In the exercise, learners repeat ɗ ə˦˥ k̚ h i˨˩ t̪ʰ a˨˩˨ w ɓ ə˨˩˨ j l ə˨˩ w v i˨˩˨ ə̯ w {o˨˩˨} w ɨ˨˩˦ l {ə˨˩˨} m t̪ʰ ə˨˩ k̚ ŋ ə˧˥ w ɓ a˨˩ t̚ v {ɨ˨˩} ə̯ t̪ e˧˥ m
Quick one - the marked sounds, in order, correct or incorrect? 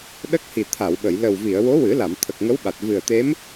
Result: incorrect: o˧˥, incorrect: a˨˩˨, correct

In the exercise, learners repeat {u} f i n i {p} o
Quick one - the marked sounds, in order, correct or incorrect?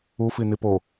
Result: correct, correct

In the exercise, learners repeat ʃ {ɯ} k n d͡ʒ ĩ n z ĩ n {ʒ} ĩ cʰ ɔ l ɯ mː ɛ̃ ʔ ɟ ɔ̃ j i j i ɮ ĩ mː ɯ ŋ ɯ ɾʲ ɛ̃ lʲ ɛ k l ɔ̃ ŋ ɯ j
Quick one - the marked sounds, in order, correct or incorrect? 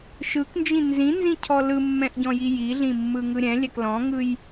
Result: correct, incorrect: z

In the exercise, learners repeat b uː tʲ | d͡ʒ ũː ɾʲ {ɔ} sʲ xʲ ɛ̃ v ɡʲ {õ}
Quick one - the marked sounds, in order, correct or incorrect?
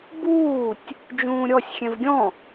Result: correct, incorrect: ɔ̃

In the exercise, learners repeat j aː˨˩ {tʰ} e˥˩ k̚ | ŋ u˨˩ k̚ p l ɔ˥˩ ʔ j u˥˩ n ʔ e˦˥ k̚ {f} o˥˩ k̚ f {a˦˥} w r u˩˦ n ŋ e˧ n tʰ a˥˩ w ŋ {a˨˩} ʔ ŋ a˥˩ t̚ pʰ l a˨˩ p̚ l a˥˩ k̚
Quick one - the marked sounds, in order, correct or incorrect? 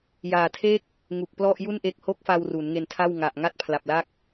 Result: correct, incorrect: h, incorrect: a˧, correct

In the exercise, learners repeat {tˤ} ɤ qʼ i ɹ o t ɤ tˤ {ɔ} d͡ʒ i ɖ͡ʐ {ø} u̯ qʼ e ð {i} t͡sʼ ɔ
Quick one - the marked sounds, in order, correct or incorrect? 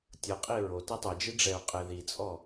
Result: incorrect: tʲ, incorrect: ɤ, incorrect: ɛ, correct

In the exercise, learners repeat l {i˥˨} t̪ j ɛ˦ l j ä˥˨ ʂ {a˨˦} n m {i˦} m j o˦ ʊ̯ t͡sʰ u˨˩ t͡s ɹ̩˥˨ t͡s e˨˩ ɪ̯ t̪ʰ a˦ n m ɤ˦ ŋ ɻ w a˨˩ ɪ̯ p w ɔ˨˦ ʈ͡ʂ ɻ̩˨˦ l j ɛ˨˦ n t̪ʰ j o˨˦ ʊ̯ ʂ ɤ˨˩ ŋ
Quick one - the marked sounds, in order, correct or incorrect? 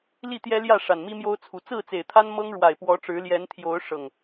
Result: correct, incorrect: a˨˩, correct

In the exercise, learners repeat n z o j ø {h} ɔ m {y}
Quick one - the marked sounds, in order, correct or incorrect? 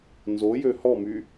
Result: correct, correct

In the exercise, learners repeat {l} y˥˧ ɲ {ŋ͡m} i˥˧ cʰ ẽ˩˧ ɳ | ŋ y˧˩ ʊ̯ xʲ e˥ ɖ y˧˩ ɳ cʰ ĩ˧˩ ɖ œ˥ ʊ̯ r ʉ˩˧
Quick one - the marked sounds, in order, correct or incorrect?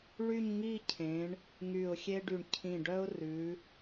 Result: incorrect: ɭ, incorrect: ŋ

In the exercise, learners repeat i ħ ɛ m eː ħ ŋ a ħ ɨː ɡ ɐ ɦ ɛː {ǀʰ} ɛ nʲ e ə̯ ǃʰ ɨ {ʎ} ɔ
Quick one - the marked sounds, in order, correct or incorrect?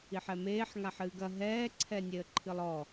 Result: correct, incorrect: lˠ

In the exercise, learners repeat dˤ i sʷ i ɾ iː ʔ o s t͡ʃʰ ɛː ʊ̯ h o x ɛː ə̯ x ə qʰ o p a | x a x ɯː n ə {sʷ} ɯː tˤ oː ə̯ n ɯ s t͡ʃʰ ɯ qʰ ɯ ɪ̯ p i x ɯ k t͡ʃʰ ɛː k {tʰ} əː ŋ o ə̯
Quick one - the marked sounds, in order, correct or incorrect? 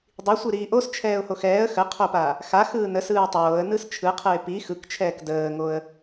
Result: incorrect: s, incorrect: d

